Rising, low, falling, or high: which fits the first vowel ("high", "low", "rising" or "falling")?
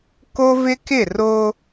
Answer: high